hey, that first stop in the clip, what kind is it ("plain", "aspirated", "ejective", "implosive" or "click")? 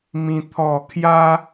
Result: aspirated